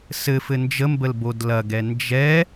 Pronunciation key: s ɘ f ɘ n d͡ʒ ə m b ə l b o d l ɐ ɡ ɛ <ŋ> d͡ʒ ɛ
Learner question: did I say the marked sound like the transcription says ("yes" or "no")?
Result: no